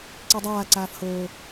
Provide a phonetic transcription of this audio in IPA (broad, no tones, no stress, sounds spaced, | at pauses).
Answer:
ǀ e dˤ aː ǀ aː f h oː